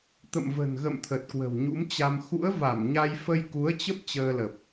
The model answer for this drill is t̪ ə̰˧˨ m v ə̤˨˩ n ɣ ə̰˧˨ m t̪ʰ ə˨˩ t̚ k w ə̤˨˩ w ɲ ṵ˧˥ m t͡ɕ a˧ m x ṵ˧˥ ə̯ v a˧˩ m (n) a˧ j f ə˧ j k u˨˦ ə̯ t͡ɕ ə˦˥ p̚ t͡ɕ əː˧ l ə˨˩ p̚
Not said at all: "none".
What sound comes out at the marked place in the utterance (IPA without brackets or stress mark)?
ɲ